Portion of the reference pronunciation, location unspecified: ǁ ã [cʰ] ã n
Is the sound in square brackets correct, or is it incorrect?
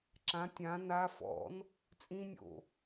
incorrect